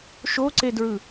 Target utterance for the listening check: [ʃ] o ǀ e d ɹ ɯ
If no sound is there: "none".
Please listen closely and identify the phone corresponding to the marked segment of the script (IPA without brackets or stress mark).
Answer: ʃ